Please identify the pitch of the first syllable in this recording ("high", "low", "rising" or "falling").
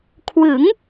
rising